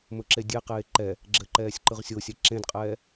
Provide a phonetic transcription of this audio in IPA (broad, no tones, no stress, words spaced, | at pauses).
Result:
mɵǁedʲeqeː ǃɛ | ɡ͡ǁɘ ǃɛːsʲǃɯʁsʲosʲɛ ǁẽdqʼɛː